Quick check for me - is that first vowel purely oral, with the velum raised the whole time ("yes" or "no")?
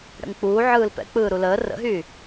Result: yes